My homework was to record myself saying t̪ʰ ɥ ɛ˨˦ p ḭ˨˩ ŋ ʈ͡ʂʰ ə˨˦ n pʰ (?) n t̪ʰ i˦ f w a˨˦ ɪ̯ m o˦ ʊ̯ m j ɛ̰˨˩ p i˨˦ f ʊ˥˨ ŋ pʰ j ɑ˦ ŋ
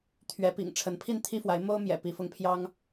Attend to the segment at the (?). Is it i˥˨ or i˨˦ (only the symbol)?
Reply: i˥˨